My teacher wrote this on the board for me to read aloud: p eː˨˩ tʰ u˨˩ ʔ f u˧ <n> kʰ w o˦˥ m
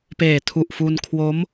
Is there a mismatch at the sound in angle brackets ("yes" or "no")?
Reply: no